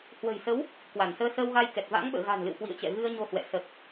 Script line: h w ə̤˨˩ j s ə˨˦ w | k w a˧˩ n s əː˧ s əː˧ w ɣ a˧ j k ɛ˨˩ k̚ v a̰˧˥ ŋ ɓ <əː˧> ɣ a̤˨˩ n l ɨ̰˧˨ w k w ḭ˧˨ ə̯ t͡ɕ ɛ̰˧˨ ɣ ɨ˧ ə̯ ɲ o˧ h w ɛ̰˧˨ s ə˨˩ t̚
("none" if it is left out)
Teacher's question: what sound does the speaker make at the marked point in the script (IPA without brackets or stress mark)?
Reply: ə̰ː˧˨